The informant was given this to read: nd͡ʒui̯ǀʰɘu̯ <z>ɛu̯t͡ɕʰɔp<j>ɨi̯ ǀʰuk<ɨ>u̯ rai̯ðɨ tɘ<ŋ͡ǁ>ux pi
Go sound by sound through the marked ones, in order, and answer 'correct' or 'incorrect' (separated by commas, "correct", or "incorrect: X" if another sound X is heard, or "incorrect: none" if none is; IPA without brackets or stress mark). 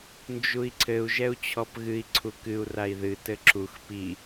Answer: incorrect: ʒ, incorrect: ɣ, correct, incorrect: ǁ